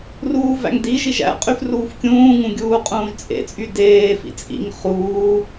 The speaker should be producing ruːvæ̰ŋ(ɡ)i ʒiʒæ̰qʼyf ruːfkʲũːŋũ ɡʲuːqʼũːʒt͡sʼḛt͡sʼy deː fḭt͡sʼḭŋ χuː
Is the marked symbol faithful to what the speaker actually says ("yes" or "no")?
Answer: no